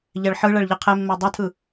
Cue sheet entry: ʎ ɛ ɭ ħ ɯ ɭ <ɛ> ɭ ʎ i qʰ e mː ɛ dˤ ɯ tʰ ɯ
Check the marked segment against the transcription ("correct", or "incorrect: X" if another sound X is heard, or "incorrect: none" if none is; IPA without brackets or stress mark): correct